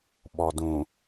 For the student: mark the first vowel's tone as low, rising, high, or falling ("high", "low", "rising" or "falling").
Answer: low